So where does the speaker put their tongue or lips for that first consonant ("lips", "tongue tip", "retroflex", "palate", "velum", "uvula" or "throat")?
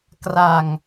velum